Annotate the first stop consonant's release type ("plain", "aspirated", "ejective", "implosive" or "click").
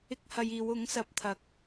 plain